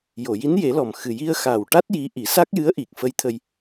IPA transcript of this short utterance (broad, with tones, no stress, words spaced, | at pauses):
jo˨˩˨ji˧˥nje˨˩˦lɔ˨˩m xɨ˨˩ji˧ə̯xaː˨˩wʈa˦˥t̚ ji˧˥ ʔi˨˩˦sa˦˥k̚jɨ˧˥ə̯ ʔi˨˩k̚fə˧˥jt̪ʰə˧j